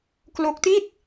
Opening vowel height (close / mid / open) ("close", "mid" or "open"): mid